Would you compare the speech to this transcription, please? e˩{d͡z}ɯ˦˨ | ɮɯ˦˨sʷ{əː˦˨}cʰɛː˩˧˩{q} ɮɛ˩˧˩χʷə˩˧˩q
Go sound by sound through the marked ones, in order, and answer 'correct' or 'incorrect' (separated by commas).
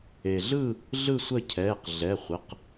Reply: incorrect, incorrect, correct